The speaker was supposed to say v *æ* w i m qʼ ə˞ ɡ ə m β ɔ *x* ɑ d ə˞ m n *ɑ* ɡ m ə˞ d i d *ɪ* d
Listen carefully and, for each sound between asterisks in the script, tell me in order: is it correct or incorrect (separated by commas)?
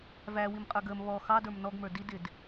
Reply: correct, correct, incorrect, correct